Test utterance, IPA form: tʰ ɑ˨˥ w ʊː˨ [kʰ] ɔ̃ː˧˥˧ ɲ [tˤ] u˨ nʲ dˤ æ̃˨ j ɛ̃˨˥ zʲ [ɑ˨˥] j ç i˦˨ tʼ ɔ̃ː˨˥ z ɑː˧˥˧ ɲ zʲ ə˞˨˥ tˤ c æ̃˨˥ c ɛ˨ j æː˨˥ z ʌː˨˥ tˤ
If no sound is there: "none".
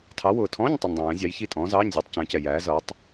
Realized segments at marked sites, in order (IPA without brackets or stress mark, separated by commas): tʰ, tˤ, ɑ˨˥